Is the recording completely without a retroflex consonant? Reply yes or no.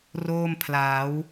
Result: yes